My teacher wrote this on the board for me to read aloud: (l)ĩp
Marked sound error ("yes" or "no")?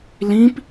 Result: no